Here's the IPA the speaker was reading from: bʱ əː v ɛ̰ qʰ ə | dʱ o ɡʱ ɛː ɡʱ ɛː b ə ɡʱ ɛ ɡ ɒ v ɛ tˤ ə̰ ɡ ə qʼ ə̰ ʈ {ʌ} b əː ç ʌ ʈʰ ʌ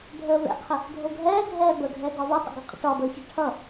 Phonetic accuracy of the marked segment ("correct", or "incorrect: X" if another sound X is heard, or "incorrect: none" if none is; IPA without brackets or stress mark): incorrect: ɒ